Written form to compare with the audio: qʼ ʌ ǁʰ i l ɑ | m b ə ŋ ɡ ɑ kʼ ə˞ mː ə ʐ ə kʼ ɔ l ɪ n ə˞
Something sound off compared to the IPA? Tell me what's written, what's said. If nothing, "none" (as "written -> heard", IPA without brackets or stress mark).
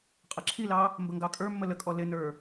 ʐ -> l